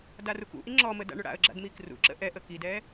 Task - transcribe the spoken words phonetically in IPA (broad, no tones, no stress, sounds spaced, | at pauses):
d a r u k ṵ ʔ i ŋ͡ǁ ɔ m ə d a̰ ɳ ɵ ɽ a̰ ə̯ ɡ͡ǁ a̰ d m i k r ṵ ǁ ə̰ ʔ ɛ ʔ ə k i d ɛ